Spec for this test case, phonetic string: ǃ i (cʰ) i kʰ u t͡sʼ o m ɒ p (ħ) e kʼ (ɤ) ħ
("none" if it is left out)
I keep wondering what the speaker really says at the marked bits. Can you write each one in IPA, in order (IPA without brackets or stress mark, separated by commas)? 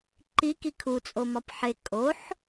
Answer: k, ħ, o